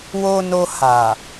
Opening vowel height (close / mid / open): mid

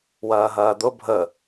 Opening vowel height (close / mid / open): open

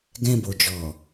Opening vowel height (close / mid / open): mid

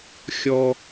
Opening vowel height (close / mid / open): mid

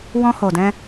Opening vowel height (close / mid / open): mid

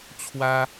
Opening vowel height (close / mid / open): open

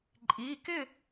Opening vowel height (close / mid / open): close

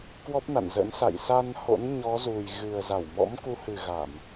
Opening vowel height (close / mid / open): mid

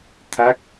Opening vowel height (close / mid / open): open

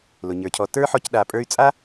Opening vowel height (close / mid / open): close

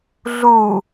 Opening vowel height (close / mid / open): close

